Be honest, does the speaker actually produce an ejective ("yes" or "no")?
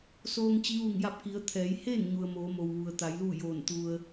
no